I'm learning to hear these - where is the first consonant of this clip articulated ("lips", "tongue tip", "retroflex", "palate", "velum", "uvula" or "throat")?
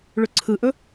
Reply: retroflex